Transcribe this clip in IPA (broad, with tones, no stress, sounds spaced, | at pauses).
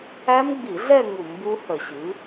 æ˦˥ m ɡ͡b i˧˩˧ ɮ ɛ˥˧ ŋ u˧˩˧ m b u˦˥ h ə˧˩˧ ɕ ɨ˩˥